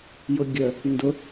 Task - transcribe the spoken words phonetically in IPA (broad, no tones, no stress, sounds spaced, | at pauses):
j ʊ ɡʲ ə | n d ʊ